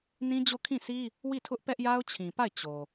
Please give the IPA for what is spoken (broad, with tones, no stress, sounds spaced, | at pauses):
n ĩ˦ d͡ʑ o˦˨ kʰ ĩ˦˨ s i˦ | w i˦˨ tʰ ʊ˦ ʔ p ɛ˦ ʔ j a˦ ʊ̯ t͡ɕʰ ĩ˨ p a˦˨ ɪ̯ t͡ɕ o˨